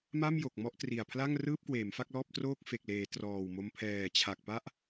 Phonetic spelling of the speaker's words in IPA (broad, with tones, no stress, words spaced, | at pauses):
ma˥˩mjo˨˩k̚ mɔ˥˩ʔtri˨˩a̯ pʰla˥˩ŋrɯː˥˩p̚kweː˩˦m fa˥˩k̚lɔː˥˩p̚ troː˥˩k̚fe˨˩k̚leː˩˦ trɔː˨˩wmo˧m pʰɛː˨˩t͡ɕʰa˨˩k̚pa˥˩ʔ